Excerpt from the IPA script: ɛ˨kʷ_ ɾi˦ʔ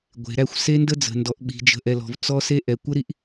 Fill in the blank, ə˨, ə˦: ə˦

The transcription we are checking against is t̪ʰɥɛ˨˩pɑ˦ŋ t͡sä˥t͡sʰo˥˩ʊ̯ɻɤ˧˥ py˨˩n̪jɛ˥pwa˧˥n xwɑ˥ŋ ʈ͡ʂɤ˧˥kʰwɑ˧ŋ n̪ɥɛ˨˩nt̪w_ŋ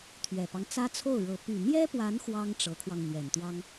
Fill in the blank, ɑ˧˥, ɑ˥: ɑ˥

